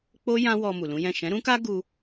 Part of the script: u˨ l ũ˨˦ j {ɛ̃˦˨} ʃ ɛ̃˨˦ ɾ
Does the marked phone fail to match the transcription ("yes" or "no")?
no